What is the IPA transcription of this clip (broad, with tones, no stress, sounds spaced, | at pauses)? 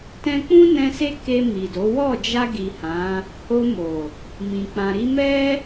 t ɛ̃˧ k͡p ũ˦ n ɛ̃˧ s e˦ k e˧ m i˨ d o˨˦ w ɔ˦˨ d͡ʒ a˧ ɡ i˨ h ã˨˦ | h o˧ m o˨ | m ĩ˨ k͡p ã˨ ɾ i˧ m ɛ˦